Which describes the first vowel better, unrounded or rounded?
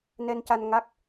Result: unrounded